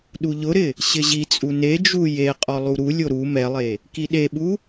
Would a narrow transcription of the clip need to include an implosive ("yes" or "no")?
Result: yes